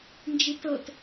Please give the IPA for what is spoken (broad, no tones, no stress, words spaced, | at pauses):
nd͡ʒitɤt